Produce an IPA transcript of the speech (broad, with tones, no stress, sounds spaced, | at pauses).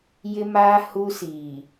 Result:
j ɪ˦ m aː˦ h u˦ s iː˨